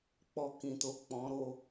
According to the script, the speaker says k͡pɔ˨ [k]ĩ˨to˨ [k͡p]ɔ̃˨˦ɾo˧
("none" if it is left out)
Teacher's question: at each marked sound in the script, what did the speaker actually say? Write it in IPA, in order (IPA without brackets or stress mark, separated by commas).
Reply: k, k͡p